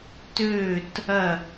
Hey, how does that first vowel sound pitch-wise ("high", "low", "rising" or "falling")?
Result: falling